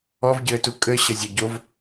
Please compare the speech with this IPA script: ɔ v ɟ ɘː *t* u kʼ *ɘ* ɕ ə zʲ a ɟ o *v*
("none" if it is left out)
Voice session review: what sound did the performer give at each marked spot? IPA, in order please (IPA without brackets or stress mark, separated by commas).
t, ɘ, v